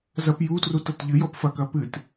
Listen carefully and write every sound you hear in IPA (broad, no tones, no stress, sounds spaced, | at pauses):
z ɐ p j u t r u t ɐ t ʎ ɨ j ɔ p f ɐ k ɐ p ɨ t